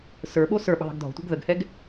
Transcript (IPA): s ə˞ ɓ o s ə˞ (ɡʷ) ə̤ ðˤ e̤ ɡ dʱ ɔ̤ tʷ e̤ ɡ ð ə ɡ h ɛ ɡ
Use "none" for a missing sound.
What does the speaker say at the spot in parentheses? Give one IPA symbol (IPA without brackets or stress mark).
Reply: ɓ